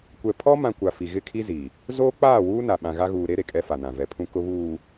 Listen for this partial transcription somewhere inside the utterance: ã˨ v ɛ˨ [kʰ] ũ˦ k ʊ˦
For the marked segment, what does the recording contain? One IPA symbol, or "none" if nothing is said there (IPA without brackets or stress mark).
pʰ